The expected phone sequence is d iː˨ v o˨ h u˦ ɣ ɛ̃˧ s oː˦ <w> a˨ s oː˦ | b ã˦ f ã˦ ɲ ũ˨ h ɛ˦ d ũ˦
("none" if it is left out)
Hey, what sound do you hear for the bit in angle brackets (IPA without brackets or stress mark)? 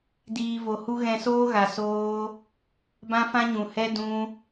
ɣ